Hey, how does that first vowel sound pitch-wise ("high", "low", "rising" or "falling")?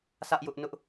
high